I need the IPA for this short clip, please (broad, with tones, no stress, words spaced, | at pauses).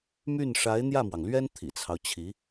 my˥˩n ʂa˧˥ɪ̯n̪jä˥˩mwɑ˩ŋlɥɛ˥n t̪ʰḭ˨˩t͡sʰɑ˦ʊ̯t͡ɕʰi˧˥